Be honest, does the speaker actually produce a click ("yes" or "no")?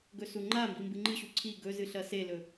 yes